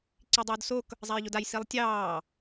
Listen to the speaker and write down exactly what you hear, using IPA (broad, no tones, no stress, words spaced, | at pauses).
ǀidˤoːdsok | zˤajʎodaj silˠtʲɑː